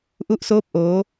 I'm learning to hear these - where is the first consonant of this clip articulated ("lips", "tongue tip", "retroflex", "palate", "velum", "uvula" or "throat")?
throat